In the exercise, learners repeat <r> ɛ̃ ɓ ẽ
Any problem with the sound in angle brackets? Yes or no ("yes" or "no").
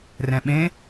no